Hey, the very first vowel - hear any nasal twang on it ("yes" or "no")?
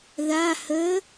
no